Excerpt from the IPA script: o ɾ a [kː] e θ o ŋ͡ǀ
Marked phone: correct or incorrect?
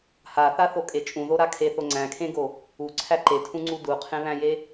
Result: incorrect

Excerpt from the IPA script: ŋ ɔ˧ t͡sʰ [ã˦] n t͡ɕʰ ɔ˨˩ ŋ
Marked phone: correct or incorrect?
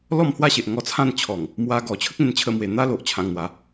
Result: incorrect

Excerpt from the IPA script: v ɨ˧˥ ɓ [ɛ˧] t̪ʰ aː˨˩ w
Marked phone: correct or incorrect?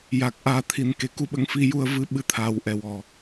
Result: incorrect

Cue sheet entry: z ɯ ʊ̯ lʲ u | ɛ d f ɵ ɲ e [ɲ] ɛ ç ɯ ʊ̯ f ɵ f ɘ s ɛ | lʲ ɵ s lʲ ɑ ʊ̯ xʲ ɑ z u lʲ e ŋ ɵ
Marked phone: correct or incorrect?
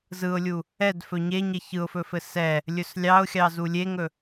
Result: correct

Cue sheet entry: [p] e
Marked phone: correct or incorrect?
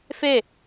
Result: incorrect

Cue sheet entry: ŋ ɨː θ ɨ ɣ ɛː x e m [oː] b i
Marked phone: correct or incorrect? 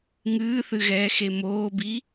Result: correct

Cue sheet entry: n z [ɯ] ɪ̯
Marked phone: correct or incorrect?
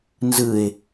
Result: correct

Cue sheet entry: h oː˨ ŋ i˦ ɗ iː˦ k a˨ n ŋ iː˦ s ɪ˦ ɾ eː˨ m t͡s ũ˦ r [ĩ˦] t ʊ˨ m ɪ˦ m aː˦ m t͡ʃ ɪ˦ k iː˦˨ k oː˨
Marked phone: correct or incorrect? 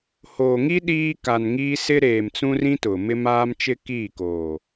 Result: correct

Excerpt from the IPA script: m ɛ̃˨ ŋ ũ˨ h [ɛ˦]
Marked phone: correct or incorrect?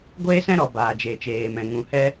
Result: correct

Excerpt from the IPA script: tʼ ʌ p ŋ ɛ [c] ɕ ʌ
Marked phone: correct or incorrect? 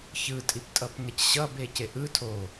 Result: correct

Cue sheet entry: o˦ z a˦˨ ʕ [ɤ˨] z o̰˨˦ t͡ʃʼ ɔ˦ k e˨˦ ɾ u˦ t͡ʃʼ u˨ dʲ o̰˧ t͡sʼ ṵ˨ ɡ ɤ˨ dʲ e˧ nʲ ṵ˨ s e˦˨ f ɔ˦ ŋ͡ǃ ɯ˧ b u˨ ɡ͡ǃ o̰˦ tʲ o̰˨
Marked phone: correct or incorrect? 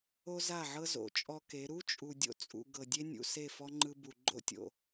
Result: incorrect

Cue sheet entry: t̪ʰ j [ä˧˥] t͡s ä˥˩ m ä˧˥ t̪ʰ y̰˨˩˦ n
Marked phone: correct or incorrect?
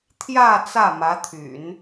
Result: incorrect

